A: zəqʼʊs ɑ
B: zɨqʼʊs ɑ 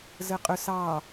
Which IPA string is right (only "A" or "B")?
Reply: A